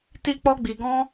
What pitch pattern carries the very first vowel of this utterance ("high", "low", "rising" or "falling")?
high